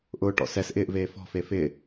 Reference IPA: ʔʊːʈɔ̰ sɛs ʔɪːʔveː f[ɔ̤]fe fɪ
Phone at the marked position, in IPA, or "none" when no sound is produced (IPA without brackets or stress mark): ɔ̤